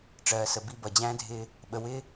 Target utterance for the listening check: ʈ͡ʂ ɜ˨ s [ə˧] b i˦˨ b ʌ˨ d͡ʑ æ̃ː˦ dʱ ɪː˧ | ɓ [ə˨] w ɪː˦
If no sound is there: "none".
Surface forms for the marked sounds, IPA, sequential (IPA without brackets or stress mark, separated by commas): ə˨, ə˨